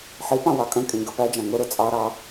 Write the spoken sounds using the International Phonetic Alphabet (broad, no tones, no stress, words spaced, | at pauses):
ħipɑ̃ wɑkʼə̃kʼĩ ɡəpæd͡ʒɑ̃ ŋʊɾʊ t͡sʼɑɾɑ